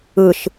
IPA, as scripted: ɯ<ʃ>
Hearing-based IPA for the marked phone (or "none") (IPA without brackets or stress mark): ʃ